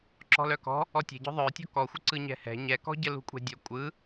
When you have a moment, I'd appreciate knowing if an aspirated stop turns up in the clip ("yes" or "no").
no